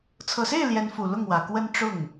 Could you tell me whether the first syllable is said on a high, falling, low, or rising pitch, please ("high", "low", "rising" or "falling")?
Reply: low